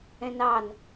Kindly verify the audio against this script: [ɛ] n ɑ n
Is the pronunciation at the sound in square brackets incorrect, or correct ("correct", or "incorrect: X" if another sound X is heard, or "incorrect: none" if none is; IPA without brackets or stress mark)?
incorrect: ɛ̃